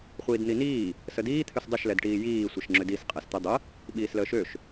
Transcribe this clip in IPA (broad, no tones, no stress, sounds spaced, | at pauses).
χʷ iː d n̪ i n iː | s ə d iː t̪ʰ ø s dˤ ə ʃ l ɛ d ʈ iː j iː sʷ ɛ ʃ ŋ͡ǁ ø d i s qʼ ɛ s t̪ ə dˤ ə | ɓ iː s l əː ʃ ø ʃ